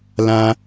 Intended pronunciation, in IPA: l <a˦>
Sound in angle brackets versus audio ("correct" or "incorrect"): incorrect